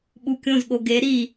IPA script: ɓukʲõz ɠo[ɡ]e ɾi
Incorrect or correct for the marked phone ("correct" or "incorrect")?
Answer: correct